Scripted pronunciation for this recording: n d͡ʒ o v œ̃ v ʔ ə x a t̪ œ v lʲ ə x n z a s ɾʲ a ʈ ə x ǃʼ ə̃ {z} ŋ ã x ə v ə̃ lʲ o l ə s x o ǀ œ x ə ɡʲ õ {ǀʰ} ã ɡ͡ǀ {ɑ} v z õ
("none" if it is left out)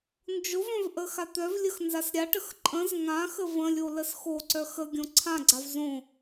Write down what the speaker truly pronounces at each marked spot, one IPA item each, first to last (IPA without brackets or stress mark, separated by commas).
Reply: z, ǀʰ, a